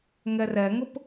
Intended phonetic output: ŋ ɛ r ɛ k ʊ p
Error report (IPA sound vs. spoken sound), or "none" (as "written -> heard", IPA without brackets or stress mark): k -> ŋ